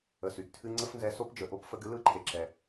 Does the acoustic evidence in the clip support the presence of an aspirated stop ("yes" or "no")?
yes